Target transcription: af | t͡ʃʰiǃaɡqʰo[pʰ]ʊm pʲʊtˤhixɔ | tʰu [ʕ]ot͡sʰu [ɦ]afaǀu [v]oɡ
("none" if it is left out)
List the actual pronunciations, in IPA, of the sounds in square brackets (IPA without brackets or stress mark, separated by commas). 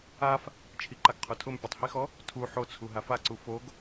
tʰ, ħ, ɦ, f